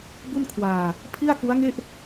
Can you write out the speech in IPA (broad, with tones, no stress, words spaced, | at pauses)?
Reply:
bu˥˩nkʰwaː˧ | pʰi˥˩a̯ku˦˥a̯ŋe˥˩ʔ